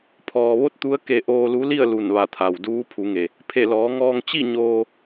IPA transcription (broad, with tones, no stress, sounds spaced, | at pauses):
pʰ ɔː˩ ʋ o˧˥ t̚ t̪ u˧˥ ə̯ k e˧ ʔ oː˧ l u˧˥ l i˥˨ ə̯ l u˧˩ n ʋ a˧˩ t̪ʰ a˩ w d uː˧˥ pʰ u˩˧ ŋ e˩ | pʰ e˧˩ l ɔː˩˧ ŋ ɔː˧ ŋ t͡ɕ i˥˨ ɲ oː˧